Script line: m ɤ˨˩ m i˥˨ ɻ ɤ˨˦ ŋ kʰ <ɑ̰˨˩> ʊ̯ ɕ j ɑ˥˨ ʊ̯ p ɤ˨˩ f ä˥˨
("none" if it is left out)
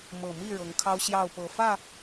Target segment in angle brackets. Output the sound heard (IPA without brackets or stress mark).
ɑ˦